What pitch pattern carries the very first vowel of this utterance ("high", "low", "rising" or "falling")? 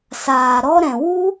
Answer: low